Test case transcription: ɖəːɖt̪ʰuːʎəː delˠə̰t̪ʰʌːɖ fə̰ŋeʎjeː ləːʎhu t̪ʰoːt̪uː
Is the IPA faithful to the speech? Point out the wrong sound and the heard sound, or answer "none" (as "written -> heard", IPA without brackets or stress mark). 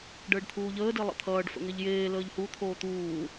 none